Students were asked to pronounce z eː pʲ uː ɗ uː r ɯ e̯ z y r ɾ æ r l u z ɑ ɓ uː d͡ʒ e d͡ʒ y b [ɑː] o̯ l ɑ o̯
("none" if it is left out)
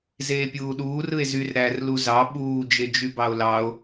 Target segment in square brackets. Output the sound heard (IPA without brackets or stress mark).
ɑ